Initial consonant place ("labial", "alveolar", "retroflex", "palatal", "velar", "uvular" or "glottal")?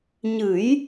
palatal